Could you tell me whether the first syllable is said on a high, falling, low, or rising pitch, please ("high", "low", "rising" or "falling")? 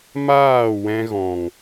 falling